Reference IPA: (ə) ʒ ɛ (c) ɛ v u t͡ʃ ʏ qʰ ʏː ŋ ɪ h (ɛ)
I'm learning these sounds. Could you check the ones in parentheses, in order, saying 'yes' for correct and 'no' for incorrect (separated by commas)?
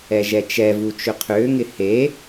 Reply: no, no, no